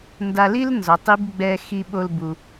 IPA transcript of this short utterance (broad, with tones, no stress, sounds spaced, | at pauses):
n d a˧ l i˥ l n z ɔ˩˧ tˤ i˧˥ b ɡ͡b ɛ˧ x i˧ ɓ o˧ l b u˩